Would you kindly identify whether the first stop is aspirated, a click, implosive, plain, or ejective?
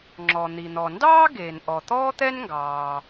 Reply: click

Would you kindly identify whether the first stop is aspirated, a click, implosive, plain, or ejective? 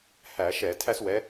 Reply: aspirated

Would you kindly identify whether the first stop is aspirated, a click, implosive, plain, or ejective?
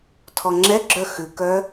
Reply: aspirated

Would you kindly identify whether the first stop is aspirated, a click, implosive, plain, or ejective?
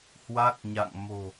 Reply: plain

